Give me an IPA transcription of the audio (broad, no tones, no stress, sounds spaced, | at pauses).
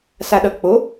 s a ɗ ʌ k͡p o